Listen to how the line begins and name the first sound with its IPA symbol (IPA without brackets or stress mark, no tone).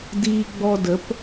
d